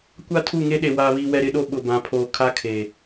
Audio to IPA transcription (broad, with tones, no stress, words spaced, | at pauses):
kʷa˦tʰu˦˨ŋe˦ ɗe˨ waː˨βiː˨wɛ˨ ɾɪ˦ɗo˦ ɓʊ˨bã˨pʰoː˨kʰa˦ kʰeː˨